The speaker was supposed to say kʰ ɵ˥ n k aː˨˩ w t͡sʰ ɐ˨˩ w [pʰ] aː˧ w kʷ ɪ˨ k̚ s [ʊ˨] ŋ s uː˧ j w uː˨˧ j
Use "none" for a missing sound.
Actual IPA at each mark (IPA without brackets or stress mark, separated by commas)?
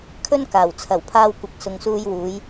pʰ, ʊ˨